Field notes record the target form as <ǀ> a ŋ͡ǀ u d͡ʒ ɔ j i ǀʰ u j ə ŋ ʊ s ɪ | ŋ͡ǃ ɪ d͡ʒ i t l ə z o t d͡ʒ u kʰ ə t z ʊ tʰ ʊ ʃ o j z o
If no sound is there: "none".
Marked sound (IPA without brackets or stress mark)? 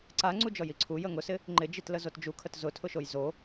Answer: ǀ